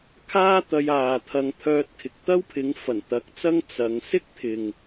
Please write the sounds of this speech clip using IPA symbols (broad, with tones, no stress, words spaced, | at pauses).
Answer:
kʰaː˥t̪ɐ˧j aː˨t̪ʰɐ˨˧ŋt̪ʰœː˧t̚kʰɪ˨k̚ t̪ɐ˥wpʰɪ˨˥ŋ fɐ˨˩nt̪ɐ˨˥k̚t͡sɐ˥ŋ t͡sɐ˨˧ŋ sɪ˥k̚t̪ʰɪ˨ŋ